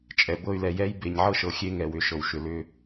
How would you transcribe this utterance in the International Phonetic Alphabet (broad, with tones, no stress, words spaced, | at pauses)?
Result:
t͡ʃʼɛ˨ bɤ˦˨y̯lɛ˨jɛ˦j be˨ɲʕɤ˦ʃɤ˨ xʲe˦ŋɛ˨wʏ˨ ʃɤ˨wʃʏ˨ lʏ˦